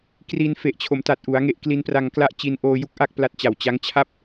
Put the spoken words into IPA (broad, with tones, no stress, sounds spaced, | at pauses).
k r i˧ n f e˨˩ ʔ t͡ɕʰ o˩˦ m t a˨˩ t̚ ʔ u˩˦ a̯ ŋ e˦˥ ʔ k l i˦˥ n p r a˧ ŋ k l a˥˩ ʔ t͡ɕ i˧ n ʔ oː˧ j u˦˥ k̚ ʔ a˥˩ k̚ p l a˦˥ t̚ t͡ɕ a˨˩ w t͡ɕ a˦˥ ŋ t͡ɕʰ a˥˩ p̚